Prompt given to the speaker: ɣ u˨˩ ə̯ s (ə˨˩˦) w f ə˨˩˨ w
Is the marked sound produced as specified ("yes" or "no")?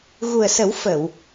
yes